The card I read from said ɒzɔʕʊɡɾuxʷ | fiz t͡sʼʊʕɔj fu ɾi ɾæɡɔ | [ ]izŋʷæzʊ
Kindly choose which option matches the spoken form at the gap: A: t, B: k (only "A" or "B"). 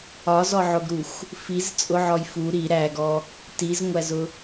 A